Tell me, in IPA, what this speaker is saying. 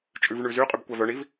t͡ʃʼ ʉ v ɳ ʉ z y qʼ y b kʷ æ v œ ɳ i v

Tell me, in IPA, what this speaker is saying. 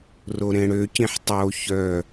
r o ɾ ẽ ɽ ø c ĩ ħ tˤ o ç œ

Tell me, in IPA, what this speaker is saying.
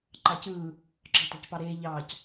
ǃ ɑ c ɯː | ǁ ɑ̤ t ɑ̤ c p ɑ ɾ eː ʎ ɑː c

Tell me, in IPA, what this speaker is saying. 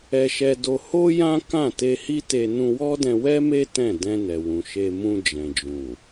ɛ˧ ʃ ɛ˧ d o˧ h o˦ j ã˦ k ã˦˨ t e˧ h i˦ t e˧ n ũ˧ w ɔ˦ d ɛ̃˧ w ɛ˦ m e˦ t ɛ̃˦˨ d ɛ̃˧ n ɛ˨ w ũ˨ ʃ e˧ m ũ˧ d͡ʒ ɛ̃˨ d͡ʒ ũ˨

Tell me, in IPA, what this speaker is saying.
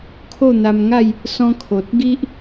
kʰ o˥˧ n̪ a˧ m ŋ a˥˧ j | s ɔ̃˦ kʰ o˨ t̚ ɡ i˦ ʔ

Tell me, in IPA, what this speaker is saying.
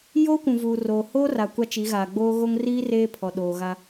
j oː˦ kʷ ũ˨ v uː˨ r oː˨ h oː˦ r a˨ kʷ a˦ t͡ʃ i˨˦ ɣ aː˨ ɡ͡b oː˦ ɣ o˦ ŋ r iː˦ r eː˦ pʰ ɔ˨ ɗ oː˨ ɣ a˦

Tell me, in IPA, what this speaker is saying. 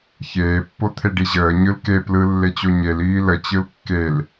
ç eː pː o t̪ʰ e ɖ i ʑ əː ɲ ɯ l k e p l ɯ lː e t͡ɕ o ɲ e l iː l ə t͡ɕ ɯ l kː e l

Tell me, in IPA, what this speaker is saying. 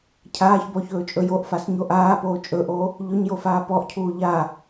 cʰ aː ç b ɔ ç ɵː t͡ʃʼ ɵ j o ʔ f a s ɲ o ʔ aː p oː t͡ʃʼ ɵ ʔ oː | ʎ ɵ ɲ j o f aː p ɔ ʔ cʰ uː ʎ aː

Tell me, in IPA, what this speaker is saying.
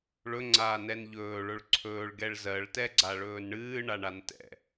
ɭ ɵ ŋ͡ǀ aː n ɛ n ʎ ɵː ɭ ɵ ɭ ǀʰ ɵː ɭ ɡ ɛ ɭ z ɜ ɭ t ɛ ɡ͡ǀ a ɭ ɵː n ɳ ɨː ɳ a ɳ a n t ɛ̰

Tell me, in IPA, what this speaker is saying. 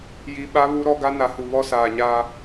j i˨ ɓ a˦ β u˦ ɾ ɔ˦ ɡ a˦ n a˨ h u˨ β ɔ˦ s aː˨ ɲ aː˦

